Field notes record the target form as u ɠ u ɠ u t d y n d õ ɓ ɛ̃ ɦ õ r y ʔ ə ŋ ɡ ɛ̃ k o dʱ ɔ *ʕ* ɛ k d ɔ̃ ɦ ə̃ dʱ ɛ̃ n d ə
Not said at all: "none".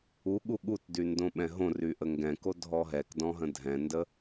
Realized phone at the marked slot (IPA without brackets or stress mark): ɦ